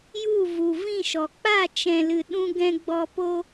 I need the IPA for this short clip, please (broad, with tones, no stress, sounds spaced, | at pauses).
j u˦˨ v u˨ v ĩ˦˨ ʃ ɔ˨ k͡p a˦˨ t͡ʃ ɛ̃˨ l ɨ˨ ɗ ũ˧ ɡ ɛ̃˧ ɡ͡b ɔ˧ p o˧